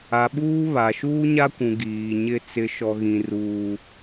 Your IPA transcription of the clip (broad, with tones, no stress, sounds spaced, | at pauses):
a˨ ɓ uː˦ β a˨ ʃ uː˦ ɲ a˦ kʷ ũ˨ ɡ iː˨ ɲ ɪ˦ t͡s ɪ˨˦ ʃ ɔ˨ ɣ ĩ˨ r uː˦